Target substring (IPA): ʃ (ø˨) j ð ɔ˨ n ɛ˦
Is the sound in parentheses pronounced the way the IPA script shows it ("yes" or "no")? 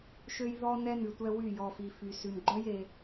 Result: yes